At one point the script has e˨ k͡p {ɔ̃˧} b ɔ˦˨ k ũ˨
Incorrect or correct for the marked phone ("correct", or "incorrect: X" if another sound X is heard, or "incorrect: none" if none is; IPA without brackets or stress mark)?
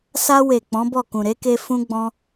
incorrect: ɔ̃˨˦